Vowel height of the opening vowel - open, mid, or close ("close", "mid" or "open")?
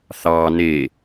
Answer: open